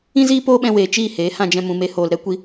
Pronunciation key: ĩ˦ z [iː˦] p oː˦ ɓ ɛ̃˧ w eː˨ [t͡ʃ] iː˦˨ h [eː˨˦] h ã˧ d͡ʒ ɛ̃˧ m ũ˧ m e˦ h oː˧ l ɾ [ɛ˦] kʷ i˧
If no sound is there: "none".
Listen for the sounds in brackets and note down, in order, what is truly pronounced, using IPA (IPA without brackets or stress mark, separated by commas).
iː˦, t͡ʃ, eː˨˦, ɛ˦